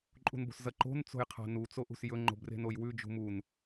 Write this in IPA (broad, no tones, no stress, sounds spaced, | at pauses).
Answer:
ǃʼ ṳ n b o̤ s z ɐ ǃ o̤ n t͡s o̤ j qʰ a̤ n u t͡s o ʔ ṳ s j ɵ ŋ͡ǃ o̤ b r e̤ n o j w ʉ d͡ʒ ṳ m u n